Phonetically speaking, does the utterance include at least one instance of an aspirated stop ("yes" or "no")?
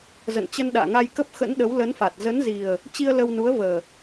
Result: no